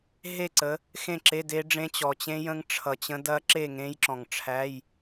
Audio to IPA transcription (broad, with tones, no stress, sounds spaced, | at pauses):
ɦ e˥˨ ǀ ə˨˦ | x ẽ˥˨ ǁ e˧˥˧ d e˦˥ ɖ͡ʐ ẽ˦˥ t͡ɕ ɔ˨ t͡ɕ ẽ˦˥ j ə̃˦˥ ŋ ʈ͡ʂʰ ʌ˨ t͡ɕ ə̃˦˥ d ɐ˦˥ ǁ e˥˨ ŋ ẽ˦˥ j ǁ ɔ̃˨ ŋ ʈ͡ʂʰ æ˧˥˧ j